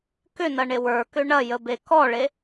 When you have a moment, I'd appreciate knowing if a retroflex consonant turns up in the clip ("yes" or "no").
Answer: yes